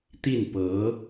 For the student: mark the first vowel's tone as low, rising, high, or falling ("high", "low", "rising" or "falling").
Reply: falling